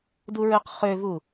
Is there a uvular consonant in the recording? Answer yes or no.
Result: yes